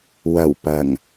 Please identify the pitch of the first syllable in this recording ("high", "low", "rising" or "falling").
low